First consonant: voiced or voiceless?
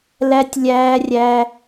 voiced